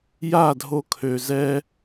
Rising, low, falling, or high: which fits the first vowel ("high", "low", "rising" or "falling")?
falling